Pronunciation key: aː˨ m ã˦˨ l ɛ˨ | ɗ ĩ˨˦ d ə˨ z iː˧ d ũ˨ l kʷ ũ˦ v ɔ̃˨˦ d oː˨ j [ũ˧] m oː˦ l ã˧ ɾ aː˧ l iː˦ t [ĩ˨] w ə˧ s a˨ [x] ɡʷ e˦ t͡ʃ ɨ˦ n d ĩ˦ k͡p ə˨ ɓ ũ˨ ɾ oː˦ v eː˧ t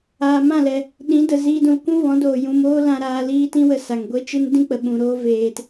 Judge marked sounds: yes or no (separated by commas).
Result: yes, no, no